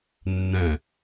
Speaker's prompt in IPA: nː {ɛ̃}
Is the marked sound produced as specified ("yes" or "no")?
yes